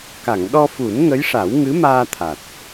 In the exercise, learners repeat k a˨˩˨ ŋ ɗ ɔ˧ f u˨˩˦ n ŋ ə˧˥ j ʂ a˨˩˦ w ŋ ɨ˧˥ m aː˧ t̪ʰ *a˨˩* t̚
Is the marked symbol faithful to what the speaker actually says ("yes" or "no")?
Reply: yes